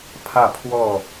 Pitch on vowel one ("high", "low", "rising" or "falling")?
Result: falling